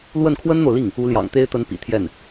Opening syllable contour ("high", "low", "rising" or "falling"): falling